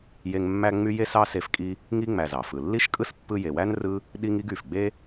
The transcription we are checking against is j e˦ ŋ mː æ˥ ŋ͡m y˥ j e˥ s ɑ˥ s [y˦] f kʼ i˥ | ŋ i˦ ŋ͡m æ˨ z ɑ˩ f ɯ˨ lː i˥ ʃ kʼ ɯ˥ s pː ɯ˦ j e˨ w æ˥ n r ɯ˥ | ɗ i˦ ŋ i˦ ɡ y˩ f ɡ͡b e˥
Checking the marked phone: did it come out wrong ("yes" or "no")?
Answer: yes